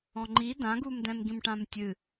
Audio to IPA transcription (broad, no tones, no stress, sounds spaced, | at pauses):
ɔ̃ ŋ͡ǃ i d ã ɡ u m d ɛ̃ m ɡ ĩ m ʈ ã m tʲ ɨ